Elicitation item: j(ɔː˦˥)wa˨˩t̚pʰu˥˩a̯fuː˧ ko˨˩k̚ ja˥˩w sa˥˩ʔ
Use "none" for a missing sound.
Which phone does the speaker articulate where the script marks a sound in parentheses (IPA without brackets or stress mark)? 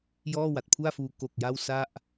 ɔː˥˩